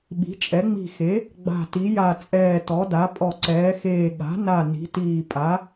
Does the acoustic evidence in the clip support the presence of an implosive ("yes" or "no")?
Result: yes